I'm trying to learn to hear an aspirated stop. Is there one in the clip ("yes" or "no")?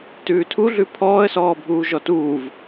yes